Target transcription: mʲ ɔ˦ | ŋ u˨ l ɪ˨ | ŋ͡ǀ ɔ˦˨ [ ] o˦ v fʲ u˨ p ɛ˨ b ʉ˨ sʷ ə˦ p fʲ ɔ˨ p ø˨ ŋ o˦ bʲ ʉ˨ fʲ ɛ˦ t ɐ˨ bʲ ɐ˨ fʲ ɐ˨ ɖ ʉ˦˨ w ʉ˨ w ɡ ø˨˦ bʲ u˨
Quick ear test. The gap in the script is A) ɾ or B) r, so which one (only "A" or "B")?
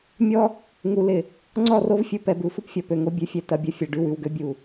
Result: B